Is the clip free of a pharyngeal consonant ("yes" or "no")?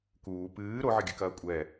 no